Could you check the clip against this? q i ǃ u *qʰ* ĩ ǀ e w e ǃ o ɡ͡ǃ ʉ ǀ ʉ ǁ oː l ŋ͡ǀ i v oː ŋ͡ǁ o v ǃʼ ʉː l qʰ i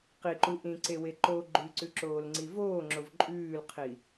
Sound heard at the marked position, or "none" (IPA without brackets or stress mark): ʔ